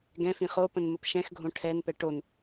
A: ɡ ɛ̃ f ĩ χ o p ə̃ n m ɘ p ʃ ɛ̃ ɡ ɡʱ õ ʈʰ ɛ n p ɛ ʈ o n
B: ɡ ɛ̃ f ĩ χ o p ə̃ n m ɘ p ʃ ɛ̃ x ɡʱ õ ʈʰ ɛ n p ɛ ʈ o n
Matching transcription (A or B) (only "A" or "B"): B